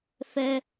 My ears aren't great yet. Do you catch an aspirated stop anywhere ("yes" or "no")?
no